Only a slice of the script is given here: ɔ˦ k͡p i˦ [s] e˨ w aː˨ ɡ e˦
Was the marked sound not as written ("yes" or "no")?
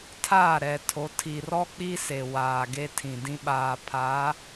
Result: no